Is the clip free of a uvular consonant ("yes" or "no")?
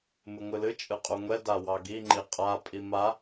no